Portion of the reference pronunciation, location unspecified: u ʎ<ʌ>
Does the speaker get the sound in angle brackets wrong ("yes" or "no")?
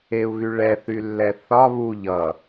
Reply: no